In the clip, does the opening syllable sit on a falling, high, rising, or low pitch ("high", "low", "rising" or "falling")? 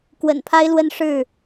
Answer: low